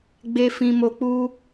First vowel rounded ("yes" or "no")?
no